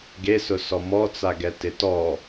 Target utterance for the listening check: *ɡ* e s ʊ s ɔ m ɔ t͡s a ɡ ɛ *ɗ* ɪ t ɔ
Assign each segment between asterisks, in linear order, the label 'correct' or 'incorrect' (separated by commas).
correct, incorrect